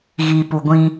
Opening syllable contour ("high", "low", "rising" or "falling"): low